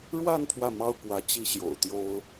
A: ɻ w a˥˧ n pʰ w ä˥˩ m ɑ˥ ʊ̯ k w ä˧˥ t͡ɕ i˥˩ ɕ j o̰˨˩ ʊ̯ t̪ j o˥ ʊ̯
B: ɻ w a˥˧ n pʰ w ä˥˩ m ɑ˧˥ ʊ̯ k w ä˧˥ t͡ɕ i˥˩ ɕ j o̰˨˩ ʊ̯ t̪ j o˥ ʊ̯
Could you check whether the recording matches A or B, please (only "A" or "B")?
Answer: A